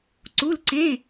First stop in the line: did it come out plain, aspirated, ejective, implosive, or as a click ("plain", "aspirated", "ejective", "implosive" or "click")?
click